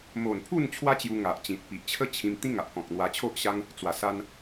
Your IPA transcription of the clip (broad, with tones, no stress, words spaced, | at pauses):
mo˨˩npʰu˥˧n t͡ɕʰwa˦t͡ɕju˧ŋa˨ʔ t͡ɕĩ˨t̚ pi˨ʔt͡ɕʰə˦t͡ɕʰĩ˧m t̪ĩ˦ŋa˨ʔkɔ̃˨k̚ n̪wa˧t͡ɕʰo˦ʔɕa˦ŋ | t͡swa˨˩sa˧n